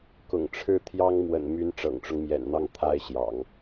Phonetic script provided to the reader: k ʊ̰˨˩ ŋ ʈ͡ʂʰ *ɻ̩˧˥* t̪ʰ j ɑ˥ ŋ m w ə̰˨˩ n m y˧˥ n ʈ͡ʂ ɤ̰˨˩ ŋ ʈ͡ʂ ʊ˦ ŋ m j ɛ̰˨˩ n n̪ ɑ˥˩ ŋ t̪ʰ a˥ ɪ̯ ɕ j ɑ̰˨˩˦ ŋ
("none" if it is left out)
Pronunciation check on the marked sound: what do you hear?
ɻ̩˥˩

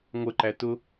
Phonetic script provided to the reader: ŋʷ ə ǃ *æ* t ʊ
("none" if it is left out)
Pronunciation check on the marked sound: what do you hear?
æ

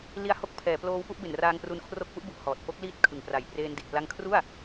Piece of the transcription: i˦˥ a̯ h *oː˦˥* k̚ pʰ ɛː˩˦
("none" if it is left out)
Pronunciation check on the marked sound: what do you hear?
o˦˥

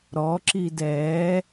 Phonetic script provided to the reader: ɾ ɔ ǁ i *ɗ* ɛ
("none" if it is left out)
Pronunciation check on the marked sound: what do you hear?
d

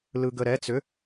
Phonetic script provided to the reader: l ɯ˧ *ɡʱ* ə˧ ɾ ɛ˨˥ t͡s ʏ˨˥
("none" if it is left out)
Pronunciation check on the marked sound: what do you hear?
ɡ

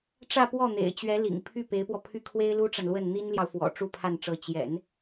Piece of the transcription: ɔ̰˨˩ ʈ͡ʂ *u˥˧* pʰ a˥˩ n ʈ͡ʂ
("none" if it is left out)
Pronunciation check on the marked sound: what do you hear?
u˥˧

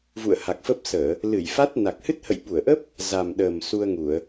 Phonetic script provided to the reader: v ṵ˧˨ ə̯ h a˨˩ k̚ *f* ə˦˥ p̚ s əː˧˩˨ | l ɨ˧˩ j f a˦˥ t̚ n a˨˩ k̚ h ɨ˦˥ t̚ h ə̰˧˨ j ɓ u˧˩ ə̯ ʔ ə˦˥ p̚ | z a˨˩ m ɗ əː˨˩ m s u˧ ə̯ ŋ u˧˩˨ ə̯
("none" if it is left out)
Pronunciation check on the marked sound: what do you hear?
f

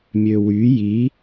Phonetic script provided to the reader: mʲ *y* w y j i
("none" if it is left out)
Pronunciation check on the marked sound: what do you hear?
ø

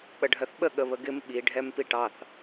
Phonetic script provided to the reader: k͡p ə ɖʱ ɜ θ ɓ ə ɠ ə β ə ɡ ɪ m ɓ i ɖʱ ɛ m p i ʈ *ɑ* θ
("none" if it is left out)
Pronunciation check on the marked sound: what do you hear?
ɑ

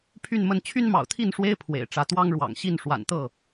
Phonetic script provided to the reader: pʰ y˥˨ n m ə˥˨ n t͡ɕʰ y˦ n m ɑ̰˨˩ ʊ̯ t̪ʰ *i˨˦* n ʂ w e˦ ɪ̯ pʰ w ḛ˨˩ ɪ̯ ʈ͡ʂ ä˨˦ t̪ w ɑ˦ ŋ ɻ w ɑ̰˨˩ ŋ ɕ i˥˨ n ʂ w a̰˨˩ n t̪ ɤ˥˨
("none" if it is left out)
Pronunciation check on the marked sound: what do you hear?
i˥˨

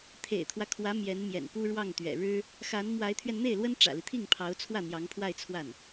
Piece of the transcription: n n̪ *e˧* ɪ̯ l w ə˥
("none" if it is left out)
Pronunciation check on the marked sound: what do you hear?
e˥˩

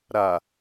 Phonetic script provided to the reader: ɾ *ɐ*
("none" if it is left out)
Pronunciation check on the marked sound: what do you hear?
a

